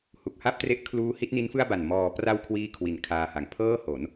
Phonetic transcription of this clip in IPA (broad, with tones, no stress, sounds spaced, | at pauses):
h u˨˩ k̚ h a˥˩ p̚ t r e˦˥ ʔ kʰ l uː˦˥ h i˦˥ t̚ n i˦˥ n f ɯ˥˩ a̯ b a˨˩ n m ɔː˩˦ p r a˧ w kʰ w iː˥˩ kʰ w i˨˩ n kʰ aː˧ h a˨˩ ŋ pʰ ɤː˥˩ h o˩˦ n